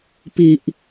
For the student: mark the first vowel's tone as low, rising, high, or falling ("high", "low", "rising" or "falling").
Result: low